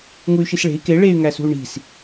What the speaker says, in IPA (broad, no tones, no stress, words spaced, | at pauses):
ŋuy̯ʃisɭe̤i̯ ke ɭey̯ ŋæsṳy̯ɳi̤s